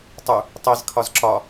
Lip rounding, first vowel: rounded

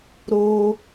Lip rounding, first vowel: rounded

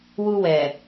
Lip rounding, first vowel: rounded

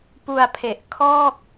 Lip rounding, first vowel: rounded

